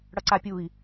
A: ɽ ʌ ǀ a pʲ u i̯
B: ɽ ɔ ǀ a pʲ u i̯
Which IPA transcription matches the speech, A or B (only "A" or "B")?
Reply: A